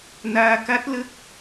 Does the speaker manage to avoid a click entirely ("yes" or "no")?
yes